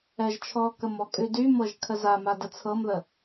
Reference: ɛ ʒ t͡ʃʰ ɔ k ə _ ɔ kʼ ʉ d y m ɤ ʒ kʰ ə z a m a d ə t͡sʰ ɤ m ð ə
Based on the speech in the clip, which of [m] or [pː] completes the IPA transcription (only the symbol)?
m